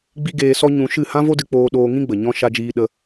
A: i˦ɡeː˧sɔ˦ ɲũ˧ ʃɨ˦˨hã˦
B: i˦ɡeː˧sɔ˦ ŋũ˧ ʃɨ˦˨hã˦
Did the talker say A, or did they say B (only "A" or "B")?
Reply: A